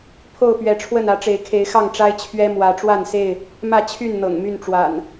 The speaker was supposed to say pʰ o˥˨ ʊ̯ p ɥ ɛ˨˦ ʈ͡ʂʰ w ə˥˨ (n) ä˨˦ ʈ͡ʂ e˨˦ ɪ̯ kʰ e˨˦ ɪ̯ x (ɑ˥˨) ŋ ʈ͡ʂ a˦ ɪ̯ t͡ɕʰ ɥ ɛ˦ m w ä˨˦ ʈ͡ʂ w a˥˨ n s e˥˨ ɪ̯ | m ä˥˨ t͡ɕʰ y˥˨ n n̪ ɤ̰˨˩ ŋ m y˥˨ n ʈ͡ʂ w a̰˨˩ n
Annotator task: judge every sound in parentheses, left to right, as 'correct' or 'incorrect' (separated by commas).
correct, correct